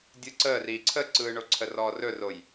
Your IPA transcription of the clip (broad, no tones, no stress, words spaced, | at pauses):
dʲɯǀəːriː ǀʰəǀɯːɳoǀʰə rɔːrɵroj